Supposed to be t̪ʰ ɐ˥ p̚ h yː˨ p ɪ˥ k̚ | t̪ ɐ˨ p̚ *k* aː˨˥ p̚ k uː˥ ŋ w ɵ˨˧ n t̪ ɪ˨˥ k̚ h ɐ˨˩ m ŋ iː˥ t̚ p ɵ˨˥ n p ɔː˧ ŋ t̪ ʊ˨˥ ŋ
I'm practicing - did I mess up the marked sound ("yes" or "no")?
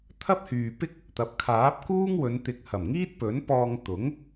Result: yes